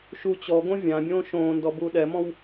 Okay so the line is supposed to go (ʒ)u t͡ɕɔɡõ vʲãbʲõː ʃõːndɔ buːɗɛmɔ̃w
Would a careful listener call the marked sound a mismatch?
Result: yes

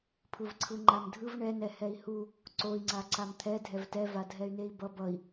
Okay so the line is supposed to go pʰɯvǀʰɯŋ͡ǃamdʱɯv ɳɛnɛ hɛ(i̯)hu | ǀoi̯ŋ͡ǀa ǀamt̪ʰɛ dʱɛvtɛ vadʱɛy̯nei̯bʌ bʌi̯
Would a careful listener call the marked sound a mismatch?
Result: no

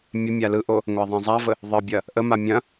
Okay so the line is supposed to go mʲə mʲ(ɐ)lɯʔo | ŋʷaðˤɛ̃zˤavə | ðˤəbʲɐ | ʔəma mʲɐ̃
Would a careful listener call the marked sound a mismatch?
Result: yes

